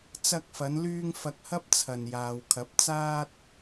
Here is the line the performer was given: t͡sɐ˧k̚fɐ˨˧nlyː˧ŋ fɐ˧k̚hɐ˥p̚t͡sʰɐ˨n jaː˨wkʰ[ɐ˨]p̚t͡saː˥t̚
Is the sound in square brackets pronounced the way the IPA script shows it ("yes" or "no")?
no